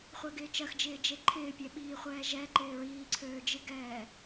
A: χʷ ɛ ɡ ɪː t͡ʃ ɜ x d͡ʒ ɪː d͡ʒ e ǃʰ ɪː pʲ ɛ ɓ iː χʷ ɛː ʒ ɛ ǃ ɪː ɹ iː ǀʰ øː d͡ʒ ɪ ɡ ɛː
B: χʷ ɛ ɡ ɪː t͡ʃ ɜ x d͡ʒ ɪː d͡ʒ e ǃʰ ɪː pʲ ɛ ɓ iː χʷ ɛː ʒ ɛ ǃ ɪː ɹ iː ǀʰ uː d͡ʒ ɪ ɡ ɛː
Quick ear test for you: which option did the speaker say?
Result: A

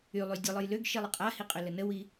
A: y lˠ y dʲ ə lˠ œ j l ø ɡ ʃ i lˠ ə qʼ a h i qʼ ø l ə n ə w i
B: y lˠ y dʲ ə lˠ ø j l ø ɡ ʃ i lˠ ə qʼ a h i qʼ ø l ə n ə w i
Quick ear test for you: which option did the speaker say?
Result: A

